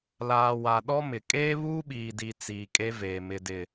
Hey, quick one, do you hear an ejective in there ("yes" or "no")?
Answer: yes